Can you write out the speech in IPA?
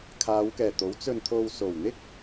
kʰaː˨˧wkɛː˨˩t̪o˨˥w t͡sɵ˧nt̪ʰo˧w so˨˩w n̪ɪ˥k̚

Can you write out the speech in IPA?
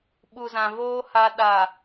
ɓu˨zã˨voː˦ ha˦ɗa˨

